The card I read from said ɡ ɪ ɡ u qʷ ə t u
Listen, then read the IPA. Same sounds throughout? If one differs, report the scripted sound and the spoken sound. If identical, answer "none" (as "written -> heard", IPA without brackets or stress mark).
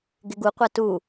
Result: ə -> a